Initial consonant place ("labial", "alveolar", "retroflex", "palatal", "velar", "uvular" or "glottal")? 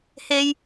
glottal